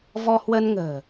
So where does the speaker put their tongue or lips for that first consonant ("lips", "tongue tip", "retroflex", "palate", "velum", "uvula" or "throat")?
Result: lips